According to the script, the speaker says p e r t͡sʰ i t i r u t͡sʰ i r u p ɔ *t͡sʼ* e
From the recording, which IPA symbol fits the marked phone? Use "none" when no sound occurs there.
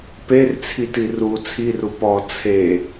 t͡sʰ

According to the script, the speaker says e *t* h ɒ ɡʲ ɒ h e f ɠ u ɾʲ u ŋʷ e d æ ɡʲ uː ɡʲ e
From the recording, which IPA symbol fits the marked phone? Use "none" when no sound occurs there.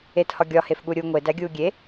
t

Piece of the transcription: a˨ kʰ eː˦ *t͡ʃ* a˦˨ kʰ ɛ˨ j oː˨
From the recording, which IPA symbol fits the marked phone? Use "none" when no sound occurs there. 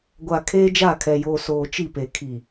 d͡ʒ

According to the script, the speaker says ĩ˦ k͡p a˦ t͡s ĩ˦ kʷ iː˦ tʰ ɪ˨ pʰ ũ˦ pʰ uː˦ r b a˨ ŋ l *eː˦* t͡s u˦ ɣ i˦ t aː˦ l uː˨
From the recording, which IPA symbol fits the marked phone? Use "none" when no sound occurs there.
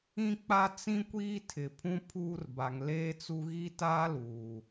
eː˦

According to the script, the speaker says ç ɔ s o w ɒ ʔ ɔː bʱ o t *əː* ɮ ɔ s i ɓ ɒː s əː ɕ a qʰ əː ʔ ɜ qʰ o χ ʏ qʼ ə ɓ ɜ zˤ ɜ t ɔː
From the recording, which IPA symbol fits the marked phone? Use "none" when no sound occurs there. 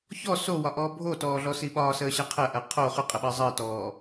ɔː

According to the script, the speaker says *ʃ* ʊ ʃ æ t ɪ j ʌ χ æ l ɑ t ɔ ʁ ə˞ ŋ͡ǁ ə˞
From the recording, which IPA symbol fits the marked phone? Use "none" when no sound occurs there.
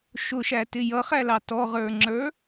ʃ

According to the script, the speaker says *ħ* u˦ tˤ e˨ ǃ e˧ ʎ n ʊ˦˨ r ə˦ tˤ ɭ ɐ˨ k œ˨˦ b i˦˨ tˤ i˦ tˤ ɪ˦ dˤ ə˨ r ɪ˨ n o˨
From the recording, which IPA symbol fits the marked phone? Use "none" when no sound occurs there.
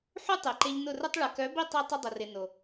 ħ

